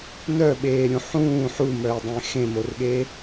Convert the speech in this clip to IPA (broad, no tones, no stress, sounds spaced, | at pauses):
n œ ɓ eː ɾʲ ũ ħ ũː ħ u m œ ɪ̯ dˤ ẽ x ẽ m o r ɠ e